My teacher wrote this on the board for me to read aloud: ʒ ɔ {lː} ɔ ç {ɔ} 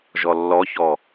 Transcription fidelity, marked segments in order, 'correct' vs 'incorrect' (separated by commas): correct, correct